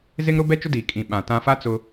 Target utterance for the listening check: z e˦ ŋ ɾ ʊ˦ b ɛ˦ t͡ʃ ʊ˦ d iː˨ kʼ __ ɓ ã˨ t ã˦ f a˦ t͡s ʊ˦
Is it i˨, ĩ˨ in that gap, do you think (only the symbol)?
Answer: ĩ˨